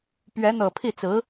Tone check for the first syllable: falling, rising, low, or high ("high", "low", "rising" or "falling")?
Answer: rising